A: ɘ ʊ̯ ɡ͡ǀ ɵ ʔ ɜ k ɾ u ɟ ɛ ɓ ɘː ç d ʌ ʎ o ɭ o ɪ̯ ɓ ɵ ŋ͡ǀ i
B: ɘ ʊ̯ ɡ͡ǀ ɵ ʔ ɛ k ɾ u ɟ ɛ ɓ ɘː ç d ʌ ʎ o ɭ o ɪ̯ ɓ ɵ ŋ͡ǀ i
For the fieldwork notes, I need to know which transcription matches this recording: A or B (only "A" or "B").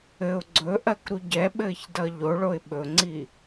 A